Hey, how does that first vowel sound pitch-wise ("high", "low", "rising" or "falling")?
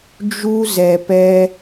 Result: high